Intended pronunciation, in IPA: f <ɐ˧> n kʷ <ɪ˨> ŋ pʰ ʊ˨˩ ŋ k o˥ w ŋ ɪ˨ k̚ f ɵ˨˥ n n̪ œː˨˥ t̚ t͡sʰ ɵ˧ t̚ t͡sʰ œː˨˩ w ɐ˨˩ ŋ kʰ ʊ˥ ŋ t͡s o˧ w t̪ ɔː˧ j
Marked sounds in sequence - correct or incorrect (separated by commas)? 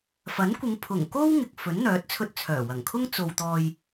incorrect, incorrect